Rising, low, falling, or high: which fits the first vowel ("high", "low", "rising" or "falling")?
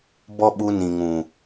high